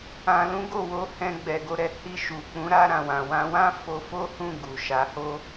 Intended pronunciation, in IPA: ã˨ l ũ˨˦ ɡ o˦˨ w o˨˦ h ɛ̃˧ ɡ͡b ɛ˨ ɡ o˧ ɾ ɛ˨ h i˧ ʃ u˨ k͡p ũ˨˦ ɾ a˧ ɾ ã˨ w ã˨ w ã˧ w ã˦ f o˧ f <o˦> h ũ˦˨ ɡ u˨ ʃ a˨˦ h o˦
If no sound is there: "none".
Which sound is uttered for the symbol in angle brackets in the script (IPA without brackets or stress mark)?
o˦